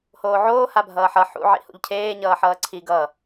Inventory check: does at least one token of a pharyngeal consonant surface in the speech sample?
yes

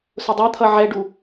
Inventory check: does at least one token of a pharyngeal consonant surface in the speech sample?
yes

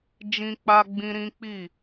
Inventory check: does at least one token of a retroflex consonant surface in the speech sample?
no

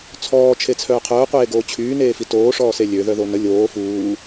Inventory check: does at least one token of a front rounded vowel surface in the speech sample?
yes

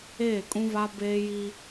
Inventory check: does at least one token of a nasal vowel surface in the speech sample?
yes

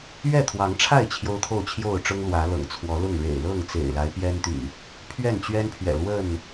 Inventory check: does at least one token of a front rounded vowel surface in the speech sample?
yes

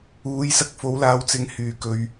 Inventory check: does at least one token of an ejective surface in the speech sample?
no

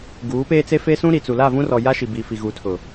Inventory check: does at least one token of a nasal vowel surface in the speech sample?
yes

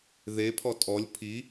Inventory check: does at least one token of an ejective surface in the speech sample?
yes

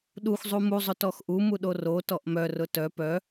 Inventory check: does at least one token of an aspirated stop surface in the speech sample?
no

